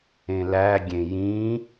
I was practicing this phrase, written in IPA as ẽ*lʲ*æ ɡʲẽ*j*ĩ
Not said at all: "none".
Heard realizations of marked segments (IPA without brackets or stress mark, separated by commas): l, j